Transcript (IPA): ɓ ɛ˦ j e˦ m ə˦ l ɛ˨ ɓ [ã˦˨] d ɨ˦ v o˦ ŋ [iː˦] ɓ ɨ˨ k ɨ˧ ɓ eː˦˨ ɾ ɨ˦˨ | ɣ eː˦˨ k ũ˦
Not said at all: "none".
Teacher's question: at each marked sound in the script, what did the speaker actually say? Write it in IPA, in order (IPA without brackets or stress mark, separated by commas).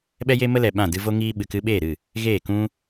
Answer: ã˦˨, iː˧